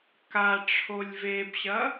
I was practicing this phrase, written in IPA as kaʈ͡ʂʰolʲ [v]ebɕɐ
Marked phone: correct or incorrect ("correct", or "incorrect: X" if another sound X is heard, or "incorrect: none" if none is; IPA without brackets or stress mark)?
correct